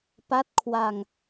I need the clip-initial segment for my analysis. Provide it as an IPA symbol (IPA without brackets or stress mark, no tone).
p